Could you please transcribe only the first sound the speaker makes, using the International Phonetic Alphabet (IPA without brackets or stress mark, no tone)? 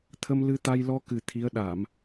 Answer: t̪ʰ